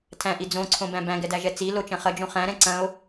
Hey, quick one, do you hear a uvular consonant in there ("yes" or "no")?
yes